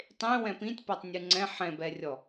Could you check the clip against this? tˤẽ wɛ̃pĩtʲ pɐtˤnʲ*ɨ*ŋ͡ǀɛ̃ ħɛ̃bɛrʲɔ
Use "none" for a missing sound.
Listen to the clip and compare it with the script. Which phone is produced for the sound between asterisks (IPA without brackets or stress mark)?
ɨ